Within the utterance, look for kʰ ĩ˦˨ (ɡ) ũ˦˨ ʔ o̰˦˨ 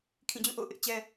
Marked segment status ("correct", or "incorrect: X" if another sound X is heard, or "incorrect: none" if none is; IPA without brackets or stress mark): incorrect: d͡ʑ